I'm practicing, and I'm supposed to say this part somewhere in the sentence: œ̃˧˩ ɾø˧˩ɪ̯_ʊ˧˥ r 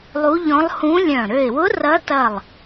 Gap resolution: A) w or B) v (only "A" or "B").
A